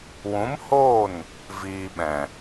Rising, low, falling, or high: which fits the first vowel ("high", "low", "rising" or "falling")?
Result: rising